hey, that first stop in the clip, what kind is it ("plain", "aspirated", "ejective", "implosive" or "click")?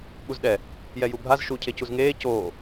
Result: implosive